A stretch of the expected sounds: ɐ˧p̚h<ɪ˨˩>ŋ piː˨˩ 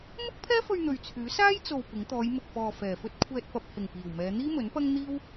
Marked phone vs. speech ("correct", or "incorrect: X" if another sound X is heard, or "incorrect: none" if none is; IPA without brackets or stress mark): correct